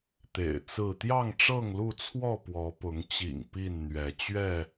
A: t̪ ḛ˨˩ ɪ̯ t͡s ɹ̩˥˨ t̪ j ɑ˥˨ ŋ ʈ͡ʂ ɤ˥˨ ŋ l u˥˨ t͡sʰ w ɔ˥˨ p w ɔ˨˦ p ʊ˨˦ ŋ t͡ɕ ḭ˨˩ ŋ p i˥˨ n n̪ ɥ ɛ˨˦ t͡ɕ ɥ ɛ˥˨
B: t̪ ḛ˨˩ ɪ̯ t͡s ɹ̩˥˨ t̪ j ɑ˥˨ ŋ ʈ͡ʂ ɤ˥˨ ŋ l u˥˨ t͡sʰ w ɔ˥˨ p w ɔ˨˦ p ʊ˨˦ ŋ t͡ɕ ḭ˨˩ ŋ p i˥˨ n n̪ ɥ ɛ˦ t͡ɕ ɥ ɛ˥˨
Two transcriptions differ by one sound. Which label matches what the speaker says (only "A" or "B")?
A